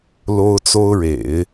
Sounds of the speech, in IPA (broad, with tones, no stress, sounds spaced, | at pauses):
l o˥ ʊ̯ t͡s o˥ ʊ̯ ɻ ḛ˨˩˦ ɪ̯